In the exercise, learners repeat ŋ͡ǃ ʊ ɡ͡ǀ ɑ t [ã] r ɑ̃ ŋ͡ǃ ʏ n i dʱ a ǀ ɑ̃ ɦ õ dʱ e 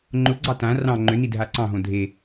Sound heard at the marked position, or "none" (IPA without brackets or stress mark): ã